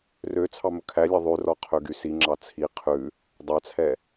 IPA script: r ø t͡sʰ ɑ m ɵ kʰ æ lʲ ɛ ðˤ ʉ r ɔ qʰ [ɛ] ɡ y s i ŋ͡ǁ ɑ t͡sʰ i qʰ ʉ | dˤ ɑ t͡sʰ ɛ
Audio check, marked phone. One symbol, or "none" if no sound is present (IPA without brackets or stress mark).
ø